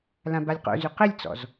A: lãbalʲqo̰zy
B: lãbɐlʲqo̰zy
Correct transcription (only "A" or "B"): A